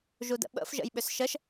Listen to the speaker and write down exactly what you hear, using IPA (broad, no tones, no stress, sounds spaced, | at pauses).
ʒ u d ə̰ ɓ ə̰ f ʒ ə̰ j ɓ ʏ s ʃ ə ʃ